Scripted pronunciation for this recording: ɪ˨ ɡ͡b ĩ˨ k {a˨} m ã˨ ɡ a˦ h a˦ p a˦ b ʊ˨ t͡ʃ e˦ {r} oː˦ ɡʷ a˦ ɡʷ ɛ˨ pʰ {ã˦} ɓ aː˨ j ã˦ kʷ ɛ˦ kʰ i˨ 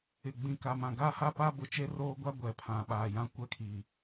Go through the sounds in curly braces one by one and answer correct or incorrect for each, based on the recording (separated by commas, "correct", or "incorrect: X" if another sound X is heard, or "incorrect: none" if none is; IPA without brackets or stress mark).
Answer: correct, correct, incorrect: ã˨